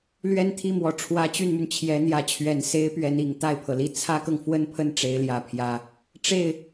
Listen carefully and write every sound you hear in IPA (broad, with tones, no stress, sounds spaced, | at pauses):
l ɥ ɛ˥˧ n t̪ʰ i˥˩ m w ɔ˨˩ ʈ͡ʂʰ w ä˧˥ t͡ɕ y˥˩ n m y˩ n t͡ɕʰ j ɛ˧˥ n̪ j ä˧˥ t͡ɕʰ ɥ ɛ˨˩ n s e˥ ɪ̯ p ɥ ɛ˧˥ n i˨˩ ŋ t̪ a˥˩ ɪ̯ pʰ ɤ˩ l i˥˩ t͡sʰ ä˥ k ɤ˨ ŋ f w ə˥ n pʰ ə˥˩ n ʈ͡ʂ e˧˥ ɪ̯ l j ä˧˥ pʰ j ä˧˥ | ʈ͡ʂ e˥˩ ɪ̯